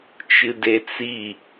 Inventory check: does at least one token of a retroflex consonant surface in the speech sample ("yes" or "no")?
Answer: no